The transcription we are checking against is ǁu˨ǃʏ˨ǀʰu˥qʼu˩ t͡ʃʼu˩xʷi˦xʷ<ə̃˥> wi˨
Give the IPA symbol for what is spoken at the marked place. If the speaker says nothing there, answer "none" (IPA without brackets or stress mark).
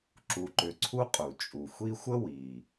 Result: ə˥